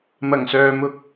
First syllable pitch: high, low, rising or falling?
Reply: low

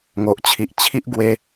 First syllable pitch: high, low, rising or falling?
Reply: low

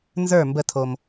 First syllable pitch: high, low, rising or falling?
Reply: falling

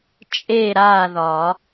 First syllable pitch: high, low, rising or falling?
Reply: falling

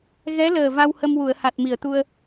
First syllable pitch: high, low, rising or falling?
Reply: rising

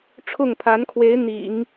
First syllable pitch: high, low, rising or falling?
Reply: falling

